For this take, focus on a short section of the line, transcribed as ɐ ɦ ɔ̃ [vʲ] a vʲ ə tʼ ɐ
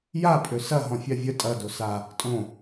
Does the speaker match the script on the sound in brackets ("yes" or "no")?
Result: no